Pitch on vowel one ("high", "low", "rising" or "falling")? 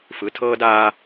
rising